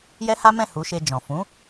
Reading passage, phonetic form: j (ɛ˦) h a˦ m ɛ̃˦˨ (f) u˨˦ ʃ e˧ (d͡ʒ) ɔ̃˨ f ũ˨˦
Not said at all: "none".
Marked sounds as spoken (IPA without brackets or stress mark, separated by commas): ɛ˦, h, d͡ʒ